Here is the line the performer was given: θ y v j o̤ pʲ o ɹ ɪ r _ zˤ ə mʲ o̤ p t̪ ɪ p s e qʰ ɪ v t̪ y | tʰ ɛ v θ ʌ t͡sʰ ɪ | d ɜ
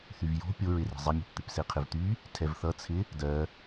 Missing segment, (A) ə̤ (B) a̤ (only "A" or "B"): A